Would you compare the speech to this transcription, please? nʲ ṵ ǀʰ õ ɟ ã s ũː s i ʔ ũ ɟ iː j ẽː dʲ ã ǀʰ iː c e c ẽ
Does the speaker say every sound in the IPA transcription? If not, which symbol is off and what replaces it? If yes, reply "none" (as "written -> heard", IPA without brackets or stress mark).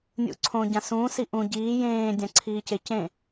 none